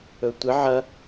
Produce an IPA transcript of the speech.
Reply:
ɵtʷɨ ʕɐ

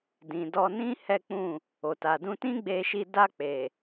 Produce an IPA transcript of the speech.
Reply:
dĩ˨dɔ˧nĩ˦ hɛ˦k͡pũ˦˨ | o˨ta˨dũ˧tĩ˦ ɡ͡be˧ʃi˧ da˧ k͡pe˨

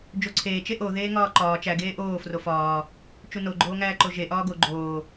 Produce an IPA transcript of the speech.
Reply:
d͡ʒoǀʰeːt͡ʃe ʔoðeːŋɒː ǃɒː t͡ʃæɡeː ʔoː frofɒː | t͡ʃunoɡ͡ǃoːŋæː ǃoʒeʔɒː ɡo ɡ͡ǃoː

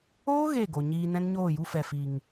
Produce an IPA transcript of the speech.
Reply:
oː˦ ɣe˦˨ɡo˨ɲiː˧ nɛ̃˦nɲoː˦˨ju˦ fɛ˨fi˨ŋ

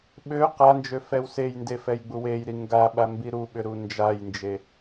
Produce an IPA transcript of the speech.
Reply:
ɓø qand͡ʒø fɛwsejnde fɛjɡ͡buwejɾi ŋɡaɓa mbiɾuɓʏ ɾund͡ʒajnd͡ʒe

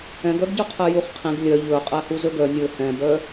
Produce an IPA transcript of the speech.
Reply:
ɛ̃ɡœɡɟœ qʰɛjuχqʰĩɡ lʲœ ʎɵ qʼæhuzɵɡœ nʲɵ hɛ̃bœ

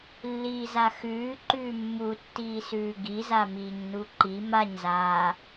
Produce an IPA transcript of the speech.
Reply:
lːiːzaxʉː ǃʉːmːu tːiːsʉːɡiza miːɲnuǃi maɲzaː

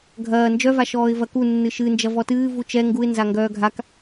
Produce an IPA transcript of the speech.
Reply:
ɡʱɐː nd͡ʒœvaʃɔːɪ̯ vɐku nːɨʃɨnd͡ʒɐ vɔtɨː vut͡ʃɛ ŋɡuɪ̯ nzaŋɡœːɡʱak

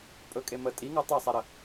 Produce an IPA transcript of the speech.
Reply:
pʼɵkʼe mə tʼiŋɤ tˤɛsˤɛɾə

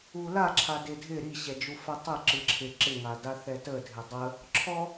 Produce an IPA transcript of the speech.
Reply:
ula ǁʰadɪdʱɪ ɾiɕɛd͡ʒufɛ tˤɪ ǁɨǁʰɪ ǁɪŋada θɛtədʱɪ dˤə | ǁʰɔ

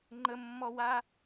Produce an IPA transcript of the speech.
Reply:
ŋ͡ǃəmːɔwa

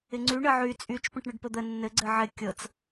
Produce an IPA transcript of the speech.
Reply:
ɪŋ͡ǀy ɳɘʕy t͡sʼyt͡ʃ pə̃ʈɳəɖpəd̪ə nːɘ ɡ͡ǀɘʕɪ kʲɤt͡s

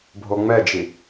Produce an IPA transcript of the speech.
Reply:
bʱoŋ͡mɛd͡ʒi

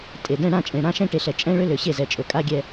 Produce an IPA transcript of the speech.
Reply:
tʼe˨ dɛ̃˦˨ ɽã˦˨t͡ʃʼẽ˨ ɽã˦ ʃɛ̃˦ʈe˨ɬɛ˨ t͡ʃʼɛ̃˦ ɭø˦lø˨ɕe˦˨zɛ˨ t͡ʃʼɵ˨kʼa˦ɡʲɛ˦

